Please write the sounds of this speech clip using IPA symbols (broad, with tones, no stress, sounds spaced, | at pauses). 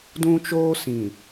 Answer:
d ũ˦ t͡ʃ oː˦ s ĩ˨